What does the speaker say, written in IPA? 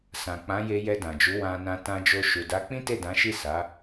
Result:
sã˨k͡pã˨˦je˧ jɛ˧dã˨d͡ʒu˨˦ wã˧nã˧ tã˧d͡ʒo˧ ʃu˨da˨˦ k͡pĩ˦te˦˨dã˨˦ʃi˦˨ sa˨˦

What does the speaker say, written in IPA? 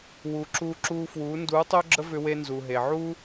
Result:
wu˨ ǁuː˧ǁuː˧ fwuː˨˦ nduː˨˦tˤʏː˦ɡ͡ǁə˦ vʏ˦we˦nzu˨ɦe˨ ʕuː˦

